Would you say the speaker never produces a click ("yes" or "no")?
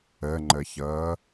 no